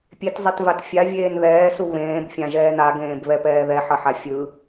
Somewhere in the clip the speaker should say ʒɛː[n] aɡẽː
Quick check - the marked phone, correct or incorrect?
correct